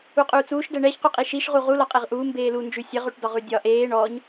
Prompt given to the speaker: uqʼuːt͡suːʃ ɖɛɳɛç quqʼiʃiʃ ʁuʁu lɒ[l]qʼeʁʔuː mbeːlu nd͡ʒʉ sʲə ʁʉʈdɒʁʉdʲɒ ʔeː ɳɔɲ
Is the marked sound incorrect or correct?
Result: incorrect